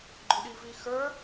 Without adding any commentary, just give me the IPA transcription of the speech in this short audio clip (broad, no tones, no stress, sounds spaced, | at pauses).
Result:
ɡ͡ǃ ʊ ɗ i v i x ə˞